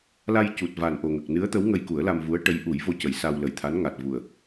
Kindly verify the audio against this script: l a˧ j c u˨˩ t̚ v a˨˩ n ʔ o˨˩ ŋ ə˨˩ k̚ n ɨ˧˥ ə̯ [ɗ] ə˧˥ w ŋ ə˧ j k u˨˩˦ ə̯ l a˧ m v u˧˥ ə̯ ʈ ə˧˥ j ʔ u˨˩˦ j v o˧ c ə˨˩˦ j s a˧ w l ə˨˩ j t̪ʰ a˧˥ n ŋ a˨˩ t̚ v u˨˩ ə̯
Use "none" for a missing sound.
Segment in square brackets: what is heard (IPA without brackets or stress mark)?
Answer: t̪